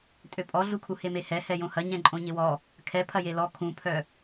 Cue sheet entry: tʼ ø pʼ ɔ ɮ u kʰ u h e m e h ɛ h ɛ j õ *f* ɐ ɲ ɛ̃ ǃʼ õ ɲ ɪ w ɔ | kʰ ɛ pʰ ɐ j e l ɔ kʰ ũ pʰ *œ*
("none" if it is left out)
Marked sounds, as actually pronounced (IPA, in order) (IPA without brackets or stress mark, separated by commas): h, œ